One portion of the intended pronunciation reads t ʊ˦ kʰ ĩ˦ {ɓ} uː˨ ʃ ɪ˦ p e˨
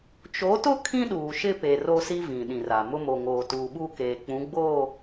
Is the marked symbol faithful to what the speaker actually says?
no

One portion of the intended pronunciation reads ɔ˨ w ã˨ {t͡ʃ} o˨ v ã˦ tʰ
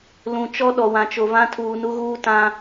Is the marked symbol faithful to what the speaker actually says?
yes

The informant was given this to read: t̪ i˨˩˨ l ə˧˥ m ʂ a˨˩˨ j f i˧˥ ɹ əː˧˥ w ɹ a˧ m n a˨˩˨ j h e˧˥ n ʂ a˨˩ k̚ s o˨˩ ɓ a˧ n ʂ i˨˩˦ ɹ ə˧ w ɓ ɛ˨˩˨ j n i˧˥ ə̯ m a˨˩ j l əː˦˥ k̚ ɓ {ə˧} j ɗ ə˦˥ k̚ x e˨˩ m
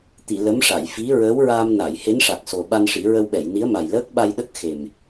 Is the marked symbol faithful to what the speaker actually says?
no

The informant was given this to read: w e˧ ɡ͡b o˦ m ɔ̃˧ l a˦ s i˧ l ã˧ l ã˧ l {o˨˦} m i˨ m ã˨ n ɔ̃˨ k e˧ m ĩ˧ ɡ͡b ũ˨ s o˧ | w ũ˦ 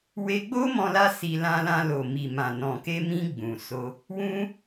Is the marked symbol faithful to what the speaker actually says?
no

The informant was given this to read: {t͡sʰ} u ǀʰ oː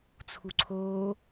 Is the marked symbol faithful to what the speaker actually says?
yes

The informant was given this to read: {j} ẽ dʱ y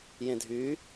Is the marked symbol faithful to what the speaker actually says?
yes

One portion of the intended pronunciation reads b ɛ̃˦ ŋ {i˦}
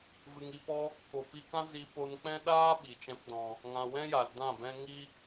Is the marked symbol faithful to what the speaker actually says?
yes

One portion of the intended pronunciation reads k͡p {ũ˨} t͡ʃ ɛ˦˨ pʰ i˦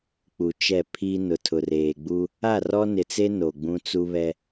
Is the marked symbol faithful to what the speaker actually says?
no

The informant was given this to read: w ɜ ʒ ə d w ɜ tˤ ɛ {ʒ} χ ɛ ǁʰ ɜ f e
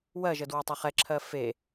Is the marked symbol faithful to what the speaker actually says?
no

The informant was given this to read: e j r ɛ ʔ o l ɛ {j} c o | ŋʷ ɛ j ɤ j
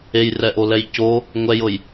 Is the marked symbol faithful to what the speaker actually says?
yes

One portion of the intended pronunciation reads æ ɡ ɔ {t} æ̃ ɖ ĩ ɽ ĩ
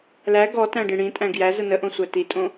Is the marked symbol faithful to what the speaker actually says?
yes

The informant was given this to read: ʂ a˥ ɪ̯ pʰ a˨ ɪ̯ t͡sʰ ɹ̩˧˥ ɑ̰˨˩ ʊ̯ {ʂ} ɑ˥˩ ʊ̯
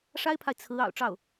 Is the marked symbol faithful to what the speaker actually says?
no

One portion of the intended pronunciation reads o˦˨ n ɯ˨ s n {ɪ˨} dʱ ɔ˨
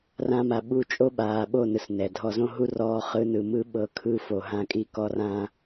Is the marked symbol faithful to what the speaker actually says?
no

